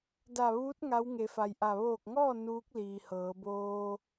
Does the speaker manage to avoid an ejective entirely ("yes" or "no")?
yes